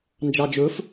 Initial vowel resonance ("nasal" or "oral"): oral